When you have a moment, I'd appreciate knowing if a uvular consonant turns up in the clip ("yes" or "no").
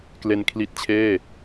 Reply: no